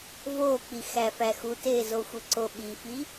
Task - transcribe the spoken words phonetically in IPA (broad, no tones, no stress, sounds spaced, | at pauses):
v oː k͡p i x æ f æ x u t eː z o xʷ e ǀ o ɓ i f i